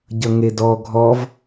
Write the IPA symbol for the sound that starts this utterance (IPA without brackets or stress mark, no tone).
ɟ